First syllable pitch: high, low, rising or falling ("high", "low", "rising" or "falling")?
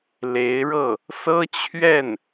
rising